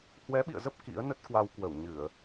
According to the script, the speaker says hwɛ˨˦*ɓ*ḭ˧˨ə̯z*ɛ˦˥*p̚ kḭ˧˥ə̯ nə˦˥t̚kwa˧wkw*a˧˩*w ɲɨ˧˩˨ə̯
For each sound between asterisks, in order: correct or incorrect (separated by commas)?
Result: correct, incorrect, incorrect